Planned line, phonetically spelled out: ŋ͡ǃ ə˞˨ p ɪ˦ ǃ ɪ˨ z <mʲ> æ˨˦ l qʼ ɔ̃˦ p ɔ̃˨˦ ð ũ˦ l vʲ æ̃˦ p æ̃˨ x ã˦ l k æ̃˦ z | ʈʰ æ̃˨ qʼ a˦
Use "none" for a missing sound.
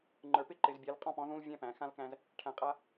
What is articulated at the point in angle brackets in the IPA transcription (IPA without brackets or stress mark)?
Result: bʲ